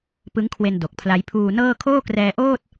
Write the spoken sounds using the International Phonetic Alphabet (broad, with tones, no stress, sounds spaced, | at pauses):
p ɯ˦˥ ŋ kʰ w e˧ n d o˨˩ k̚ pʰ l a˦˥ j pʰ uː˧ n ɤː˥˩ kʰ oː˥˩ k r ɛː˧ ʔ oː˥˩ t̚